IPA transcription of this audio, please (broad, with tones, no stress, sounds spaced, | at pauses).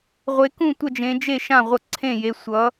ʁʷ e˨˦ k ũ˥˨ tʷ ʌ˥˨ d͡ʒ ẽ˨˦ d͡ʒ e˥˨ ʃ ã˥˨ ʁʷ ʌ˥˨ ǀʰ ẽ˥˨ j e˨˦ sʷ ʌ˨˦